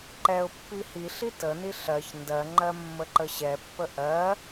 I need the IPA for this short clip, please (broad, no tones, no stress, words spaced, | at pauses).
ǃɛʊ̯pːi hiɬi təni ɬɜç ndɜŋ͡ǃɜ mːəǃəɕɛpːə ʔɜ